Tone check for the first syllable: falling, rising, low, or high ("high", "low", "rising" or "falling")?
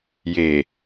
low